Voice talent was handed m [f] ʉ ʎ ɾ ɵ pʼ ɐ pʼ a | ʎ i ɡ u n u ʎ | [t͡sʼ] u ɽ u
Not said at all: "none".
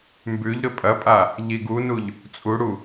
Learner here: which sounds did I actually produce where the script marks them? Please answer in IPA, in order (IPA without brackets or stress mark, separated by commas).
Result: b, t͡sʼ